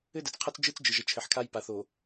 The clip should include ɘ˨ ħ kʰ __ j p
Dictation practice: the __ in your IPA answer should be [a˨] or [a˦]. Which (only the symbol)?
a˦